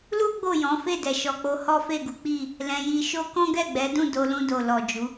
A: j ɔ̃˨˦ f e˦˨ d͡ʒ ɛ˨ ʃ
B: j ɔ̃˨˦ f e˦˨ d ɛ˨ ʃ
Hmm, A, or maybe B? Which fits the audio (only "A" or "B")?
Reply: B